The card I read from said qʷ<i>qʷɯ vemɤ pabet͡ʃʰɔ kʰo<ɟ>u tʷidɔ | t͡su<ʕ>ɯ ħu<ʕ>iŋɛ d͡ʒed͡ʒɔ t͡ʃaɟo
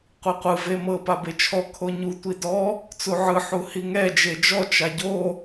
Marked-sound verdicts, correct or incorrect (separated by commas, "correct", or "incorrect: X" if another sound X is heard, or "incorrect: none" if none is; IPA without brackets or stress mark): correct, incorrect: ɲ, correct, incorrect: h